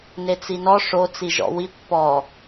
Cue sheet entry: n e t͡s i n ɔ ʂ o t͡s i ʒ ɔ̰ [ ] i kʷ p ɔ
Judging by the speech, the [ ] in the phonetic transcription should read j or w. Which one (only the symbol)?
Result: w